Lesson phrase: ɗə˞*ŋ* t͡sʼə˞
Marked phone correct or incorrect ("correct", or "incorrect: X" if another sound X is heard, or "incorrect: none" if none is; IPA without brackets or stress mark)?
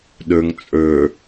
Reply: correct